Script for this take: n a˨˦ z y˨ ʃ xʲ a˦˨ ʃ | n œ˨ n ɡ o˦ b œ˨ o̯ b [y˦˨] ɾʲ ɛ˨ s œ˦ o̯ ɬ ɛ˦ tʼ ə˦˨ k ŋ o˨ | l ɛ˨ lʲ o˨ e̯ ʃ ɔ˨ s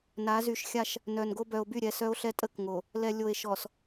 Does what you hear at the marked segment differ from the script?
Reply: no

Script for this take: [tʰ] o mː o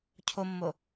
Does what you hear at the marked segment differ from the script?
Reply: yes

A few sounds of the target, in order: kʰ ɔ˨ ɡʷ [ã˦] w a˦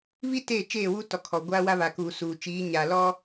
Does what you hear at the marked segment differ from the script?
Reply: yes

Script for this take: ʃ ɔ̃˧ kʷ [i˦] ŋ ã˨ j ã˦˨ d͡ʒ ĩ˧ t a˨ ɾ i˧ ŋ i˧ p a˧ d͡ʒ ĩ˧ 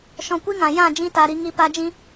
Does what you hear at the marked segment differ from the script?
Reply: no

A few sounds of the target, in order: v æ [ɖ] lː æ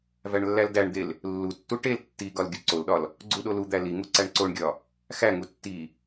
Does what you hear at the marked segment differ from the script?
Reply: yes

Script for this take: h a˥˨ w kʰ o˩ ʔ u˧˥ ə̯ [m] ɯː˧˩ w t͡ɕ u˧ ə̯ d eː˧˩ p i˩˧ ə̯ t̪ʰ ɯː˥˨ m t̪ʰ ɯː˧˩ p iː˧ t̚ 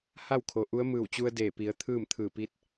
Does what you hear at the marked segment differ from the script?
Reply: no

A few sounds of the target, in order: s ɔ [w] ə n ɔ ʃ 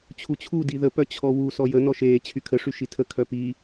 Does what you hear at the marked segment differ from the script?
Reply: yes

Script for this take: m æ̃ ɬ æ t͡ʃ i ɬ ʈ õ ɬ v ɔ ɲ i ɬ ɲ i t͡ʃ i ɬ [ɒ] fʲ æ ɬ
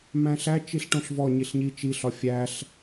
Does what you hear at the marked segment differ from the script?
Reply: no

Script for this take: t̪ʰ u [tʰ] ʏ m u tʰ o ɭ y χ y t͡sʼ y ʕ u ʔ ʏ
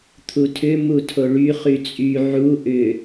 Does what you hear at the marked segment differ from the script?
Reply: no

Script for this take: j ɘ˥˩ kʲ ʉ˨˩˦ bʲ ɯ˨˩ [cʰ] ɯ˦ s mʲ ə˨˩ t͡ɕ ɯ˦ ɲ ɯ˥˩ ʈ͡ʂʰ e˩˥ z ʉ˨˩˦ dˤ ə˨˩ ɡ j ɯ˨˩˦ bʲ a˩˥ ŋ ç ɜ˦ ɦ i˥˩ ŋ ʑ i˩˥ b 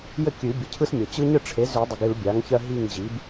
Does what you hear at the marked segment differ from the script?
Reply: no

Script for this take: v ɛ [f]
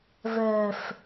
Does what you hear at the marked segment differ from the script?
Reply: no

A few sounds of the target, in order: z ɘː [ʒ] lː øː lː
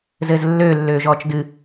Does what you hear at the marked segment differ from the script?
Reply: yes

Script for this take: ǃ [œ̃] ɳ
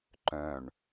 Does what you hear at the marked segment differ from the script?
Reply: no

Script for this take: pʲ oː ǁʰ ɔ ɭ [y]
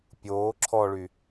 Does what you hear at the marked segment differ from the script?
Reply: no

